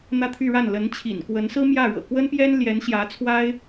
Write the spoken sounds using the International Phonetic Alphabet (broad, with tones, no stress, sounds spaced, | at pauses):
n̪ ä˥˧ t̪ʰ y˥˧ ɻ a˥˩ n l ə˧˥ n t͡ɕʰ ḭ˨˩ n k w ə˧˥ n s ɹ̩˥ m j ä˥˩ ɻ ɤ̰˨˩ k w ə˥ n p j ɛ˥ n l j ɛ˧˥ n ɕ j ä˧˥ t͡sʰ w a˥ ɪ̯